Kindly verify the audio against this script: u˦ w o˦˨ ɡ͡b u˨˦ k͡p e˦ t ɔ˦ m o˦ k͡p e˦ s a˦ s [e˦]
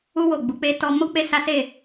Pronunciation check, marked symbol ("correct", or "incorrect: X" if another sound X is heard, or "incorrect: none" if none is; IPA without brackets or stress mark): incorrect: e˦˨